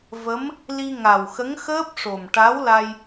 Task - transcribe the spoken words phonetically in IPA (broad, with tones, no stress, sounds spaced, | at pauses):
v ə˧˥ m | l i˧ ŋ a˨˩ w x ə˧˥ ŋ x əː˦˥ p̚ ʂ o˨˩ m ʈ a˧˥ w l a˧ j